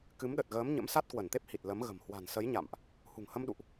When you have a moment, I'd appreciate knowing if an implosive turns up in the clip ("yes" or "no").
yes